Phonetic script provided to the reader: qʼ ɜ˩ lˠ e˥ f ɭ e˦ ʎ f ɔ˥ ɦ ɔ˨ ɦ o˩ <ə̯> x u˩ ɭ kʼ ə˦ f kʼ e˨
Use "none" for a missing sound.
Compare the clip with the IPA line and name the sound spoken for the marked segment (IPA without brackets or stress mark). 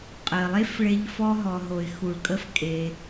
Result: ɪ̯